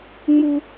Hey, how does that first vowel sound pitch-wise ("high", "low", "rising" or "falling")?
high